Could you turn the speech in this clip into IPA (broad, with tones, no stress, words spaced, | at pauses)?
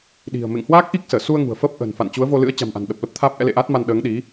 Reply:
ɗi̤˨˩ə̯ mḛ˧˨ŋhwaː˦˥k̚ʔi˦˥k̚ səː˧˩su˧ə̯ŋṳ˨˩ə̯ fəː˦˥p̚ʔə̤ː˨˩nfa̰˧˨n t͡ɕu˨˦ə̯vo˧ lɨ̰˧˥ə̯ t͡ɕa̤˨˩mʔa̤˨˩nɗə˨˩p̚ lə˦˥p̚t̪ʰaː˦˥p̚ʔɛ̰˧˥ lḛ˧˨ʔaː˦˥t̚ma˧n ɗəː˨˦ŋɗi˨˦